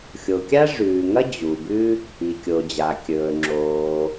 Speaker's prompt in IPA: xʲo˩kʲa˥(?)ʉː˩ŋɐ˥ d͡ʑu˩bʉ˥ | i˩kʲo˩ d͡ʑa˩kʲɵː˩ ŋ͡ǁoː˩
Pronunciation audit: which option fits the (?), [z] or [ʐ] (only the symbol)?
ʐ